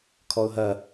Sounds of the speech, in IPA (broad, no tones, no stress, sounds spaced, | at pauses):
kʰ ɔ ʊ̯ ɦ ɐ